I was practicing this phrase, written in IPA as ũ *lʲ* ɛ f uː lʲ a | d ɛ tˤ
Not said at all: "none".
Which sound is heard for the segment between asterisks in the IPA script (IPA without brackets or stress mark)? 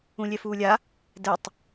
lʲ